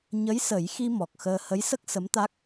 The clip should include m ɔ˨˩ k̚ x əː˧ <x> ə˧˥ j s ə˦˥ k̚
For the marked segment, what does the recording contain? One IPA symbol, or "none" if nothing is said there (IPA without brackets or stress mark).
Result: h